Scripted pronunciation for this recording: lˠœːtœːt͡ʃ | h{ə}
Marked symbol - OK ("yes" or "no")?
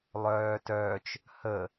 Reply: yes